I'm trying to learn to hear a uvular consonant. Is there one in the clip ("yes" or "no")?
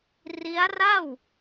no